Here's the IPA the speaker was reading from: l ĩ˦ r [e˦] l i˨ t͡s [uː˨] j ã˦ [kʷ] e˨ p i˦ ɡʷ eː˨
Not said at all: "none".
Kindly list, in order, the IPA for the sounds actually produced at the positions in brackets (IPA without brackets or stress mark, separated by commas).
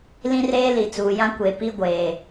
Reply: eː˦, uː˨, kʷ